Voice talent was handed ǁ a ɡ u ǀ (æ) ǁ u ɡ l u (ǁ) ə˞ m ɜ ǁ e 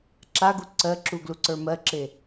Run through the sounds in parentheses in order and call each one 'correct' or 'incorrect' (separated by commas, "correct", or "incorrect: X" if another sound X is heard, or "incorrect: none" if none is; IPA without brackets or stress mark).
incorrect: ɜ, incorrect: ǀ